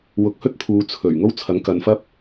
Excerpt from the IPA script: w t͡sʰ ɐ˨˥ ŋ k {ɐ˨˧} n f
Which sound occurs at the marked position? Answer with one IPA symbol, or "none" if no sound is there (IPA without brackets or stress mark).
ɐ˨˧